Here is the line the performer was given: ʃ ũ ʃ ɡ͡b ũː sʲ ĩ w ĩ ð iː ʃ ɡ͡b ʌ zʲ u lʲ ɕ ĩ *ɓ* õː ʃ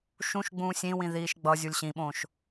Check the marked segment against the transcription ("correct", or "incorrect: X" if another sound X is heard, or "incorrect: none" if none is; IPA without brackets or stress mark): correct